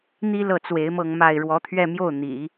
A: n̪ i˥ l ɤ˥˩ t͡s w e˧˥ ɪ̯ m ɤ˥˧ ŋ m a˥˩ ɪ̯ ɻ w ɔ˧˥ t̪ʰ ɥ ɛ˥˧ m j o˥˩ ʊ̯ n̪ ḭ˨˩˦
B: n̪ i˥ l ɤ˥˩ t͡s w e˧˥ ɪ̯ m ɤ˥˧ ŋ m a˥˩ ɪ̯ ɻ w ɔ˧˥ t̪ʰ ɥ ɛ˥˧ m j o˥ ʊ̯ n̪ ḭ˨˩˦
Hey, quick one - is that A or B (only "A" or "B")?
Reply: A